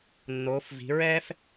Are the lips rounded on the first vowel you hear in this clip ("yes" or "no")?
yes